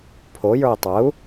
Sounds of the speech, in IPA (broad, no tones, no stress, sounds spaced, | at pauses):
pʰ o j ə˞ i̯ tˤ ə u̯